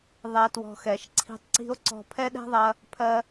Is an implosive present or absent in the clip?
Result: present